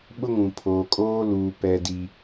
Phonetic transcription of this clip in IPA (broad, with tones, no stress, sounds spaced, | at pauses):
ɓ ʊ˦ ŋ ũ˨ pʰ oː˨ kʼ oː˦ l uː˨ p ɛ˦ d i˦